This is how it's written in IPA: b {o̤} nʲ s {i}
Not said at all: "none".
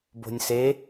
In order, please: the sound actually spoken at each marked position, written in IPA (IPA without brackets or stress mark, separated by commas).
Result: o̤, e